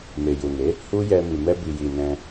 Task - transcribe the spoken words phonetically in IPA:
m e˨ j u˨ n e˨˦ | h u˦ j ɛ˧ m i˨ m ɛ˧ b i˨ j i˨ n ɛ̃˧

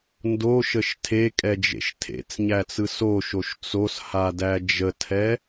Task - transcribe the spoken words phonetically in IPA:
n d o ʃ ə ʃ tʰ e kʼ ɛ d͡ʒ ḛ ʃ tʰ ḛ t͡s ɲ æ t͡s ɯ s o ʃ o ʃ t͡s o s h a d æ d͡ʒ ə tʰ ɛ

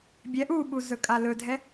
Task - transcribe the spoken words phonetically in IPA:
bʲ ɛ ʔ u ɓ u z ɵ kʼ a l ɵ dʱ ɛ

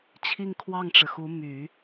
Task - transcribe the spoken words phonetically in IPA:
t͡ɕʰ i˥˧ ŋ kʰ w ɑ˥˩ ŋ ʈ͡ʂ ɻ̩˩ x u˧˥ m y˨˩˦

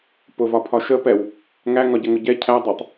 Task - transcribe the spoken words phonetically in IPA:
p ʊ v ɒ pʰ ɒ ʃ ə p ɛ w | ŋ æ ŋ ɒ ɟ ə ŋ ʊ ɟ ɛ cʰ æ dˤ ɛ tˤ

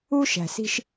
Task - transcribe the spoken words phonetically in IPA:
u˥ ʃ æ̤˨ s i̤˦ ʃ

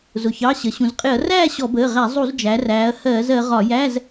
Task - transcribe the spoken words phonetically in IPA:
z ʊ˩ ç ɑ˩˧˩ ɕ ə˩˧ ɕ ũ˩ z qʼ ɪ˧˩˧ ɐ̯ r æː˥˨ ɕ ɔ˧˩˧ b əː˩˧˩ ʁ æ˧˩˧ zˤ u˧˩˧ z d͡ʒ æ˩˧ r æː˩˧ ɐ̯ h ɜː˧˩˧ z ɜ˩˧ ʁ ɒ˧˩˧ j æ˧˥˧ z

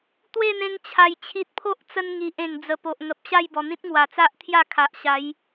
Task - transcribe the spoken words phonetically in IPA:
t̪ w e˥˧ n̪ ẽ˧ ŋ t͡ɕʰ a˨˩ j t͡ɕʰ i˨ t̚ pʰ o˦ ʔ t͡s ə˧ n ŋ i˨ ʔ ẽ˨˩ ŋ d͡z ə˨˩ p o˨ ʔ ŋ ə˨ p̚ ɕ a˥˧ j b ɔ˨˩ n̪ ĩ˦ t̚ ŋ w a˨˩ t͡s a˦ ʔ t̪ʰ j a˥˧ kʰ a˨ ʔ ɕ a˨˦ j

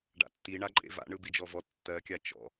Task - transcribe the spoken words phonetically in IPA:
ɖ a̰ tː i ɳ a ǃʼ ḛ v a̰ ɳ ɯ b i d͡ʒ ɔ v ɔ tː ɜ kʲ a t͡ʃ ɔ̰

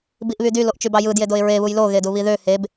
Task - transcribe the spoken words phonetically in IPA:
b i ʔ β y d y l o ʔ t͡ʃ y b ɑ j ɯ d j e d o ɪ̯ ɹ e β u j l o ɣ e d u β i ð ø h e b

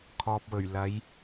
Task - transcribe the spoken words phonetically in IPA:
kʰ ɔː˨ p̚ w ɵ˨˩ ɥ l ɐ˨˧ j

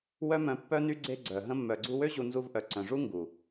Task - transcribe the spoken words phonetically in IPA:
w œ˦ m œ̃˧ pː œ˦ n y˦ ɡ͡ǀ e˧ ɡ͡ǀ œ˨ ɦ ə̃˧ mː œ˨ ɡ͡ǀ u˧ w ø˦ ʑ u˧ n z u˧ v ʔ œ˨ ǀ œ̃˨ ʐ u˦ ŋ ɡ u˨

